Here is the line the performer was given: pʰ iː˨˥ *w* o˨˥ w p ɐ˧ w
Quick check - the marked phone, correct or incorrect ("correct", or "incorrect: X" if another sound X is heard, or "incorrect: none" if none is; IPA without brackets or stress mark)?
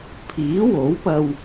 correct